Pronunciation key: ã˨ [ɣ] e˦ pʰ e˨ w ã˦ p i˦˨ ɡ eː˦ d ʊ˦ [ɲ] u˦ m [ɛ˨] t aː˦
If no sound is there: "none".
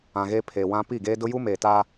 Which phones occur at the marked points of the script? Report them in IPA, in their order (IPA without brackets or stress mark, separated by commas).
ɣ, j, e˨